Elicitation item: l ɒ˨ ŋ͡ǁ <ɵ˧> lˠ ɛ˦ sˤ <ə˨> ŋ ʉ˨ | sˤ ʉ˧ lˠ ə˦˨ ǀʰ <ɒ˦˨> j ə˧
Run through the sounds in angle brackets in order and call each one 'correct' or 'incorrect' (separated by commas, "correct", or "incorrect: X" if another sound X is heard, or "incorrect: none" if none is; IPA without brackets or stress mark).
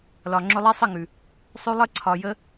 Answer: correct, incorrect: ə˦˨, incorrect: ɒ˨